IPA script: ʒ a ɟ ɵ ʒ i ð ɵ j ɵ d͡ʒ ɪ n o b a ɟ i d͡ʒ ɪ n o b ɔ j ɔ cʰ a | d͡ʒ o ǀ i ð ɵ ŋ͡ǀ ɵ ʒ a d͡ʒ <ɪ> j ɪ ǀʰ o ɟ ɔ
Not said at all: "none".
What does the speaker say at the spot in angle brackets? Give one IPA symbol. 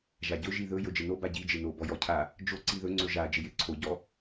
ɪ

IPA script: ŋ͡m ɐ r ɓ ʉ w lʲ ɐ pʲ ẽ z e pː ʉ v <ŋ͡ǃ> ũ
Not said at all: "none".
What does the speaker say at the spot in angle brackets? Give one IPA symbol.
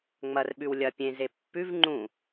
ŋ͡ǃ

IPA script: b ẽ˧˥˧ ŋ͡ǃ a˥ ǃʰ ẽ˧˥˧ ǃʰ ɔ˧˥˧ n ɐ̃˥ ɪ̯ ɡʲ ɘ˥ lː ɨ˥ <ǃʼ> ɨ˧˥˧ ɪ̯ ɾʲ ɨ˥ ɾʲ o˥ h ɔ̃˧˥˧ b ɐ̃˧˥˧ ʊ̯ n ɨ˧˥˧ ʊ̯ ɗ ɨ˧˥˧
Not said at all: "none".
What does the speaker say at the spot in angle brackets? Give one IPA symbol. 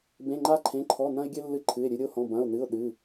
ǃʰ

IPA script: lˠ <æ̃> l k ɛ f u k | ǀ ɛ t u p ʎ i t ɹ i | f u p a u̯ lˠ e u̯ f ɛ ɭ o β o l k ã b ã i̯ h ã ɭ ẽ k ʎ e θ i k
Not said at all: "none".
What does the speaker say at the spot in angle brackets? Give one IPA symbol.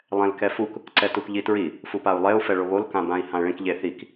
ɛ̃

